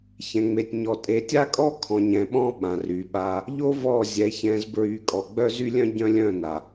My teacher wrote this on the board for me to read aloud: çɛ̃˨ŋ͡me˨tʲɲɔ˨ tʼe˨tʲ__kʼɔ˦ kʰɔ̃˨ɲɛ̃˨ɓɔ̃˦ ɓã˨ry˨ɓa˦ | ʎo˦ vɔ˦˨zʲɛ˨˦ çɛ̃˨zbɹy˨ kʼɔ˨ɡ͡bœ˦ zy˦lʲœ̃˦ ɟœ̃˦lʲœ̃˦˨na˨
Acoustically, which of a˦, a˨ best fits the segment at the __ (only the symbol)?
a˦